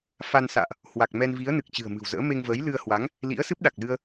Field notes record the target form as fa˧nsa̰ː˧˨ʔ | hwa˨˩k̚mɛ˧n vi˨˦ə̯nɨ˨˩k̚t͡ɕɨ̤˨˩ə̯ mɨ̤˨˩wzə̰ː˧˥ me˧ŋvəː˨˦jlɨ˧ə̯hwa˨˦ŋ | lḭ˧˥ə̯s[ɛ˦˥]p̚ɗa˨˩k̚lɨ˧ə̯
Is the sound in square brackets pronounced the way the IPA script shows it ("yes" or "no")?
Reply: no